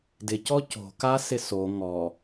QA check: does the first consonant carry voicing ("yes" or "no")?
yes